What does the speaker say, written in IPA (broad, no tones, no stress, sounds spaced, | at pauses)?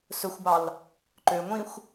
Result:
s ɵ xʷ b ɑ l | ǃ ø ŋʷ ĩ xʷ